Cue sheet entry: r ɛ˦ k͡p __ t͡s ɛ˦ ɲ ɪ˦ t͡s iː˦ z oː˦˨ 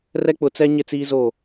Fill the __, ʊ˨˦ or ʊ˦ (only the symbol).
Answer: ʊ˨˦